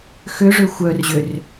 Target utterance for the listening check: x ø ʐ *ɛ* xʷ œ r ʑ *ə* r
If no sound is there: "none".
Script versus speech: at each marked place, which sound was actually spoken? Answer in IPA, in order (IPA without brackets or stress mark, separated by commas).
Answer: ø, ø